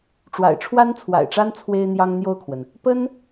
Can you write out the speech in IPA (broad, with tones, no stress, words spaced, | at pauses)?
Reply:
ʈ͡ʂwa̰˨˩ɪ̯ʈ͡ʂʰwa˥nt͡sʰwa̰˨˩ɪ̯ʈ͡ʂa˥n t͡sʰwe˥ɪ̯n̪jɑ˥ŋn̪jo˥˩ʊ̯kʰwə˩n | pə˥n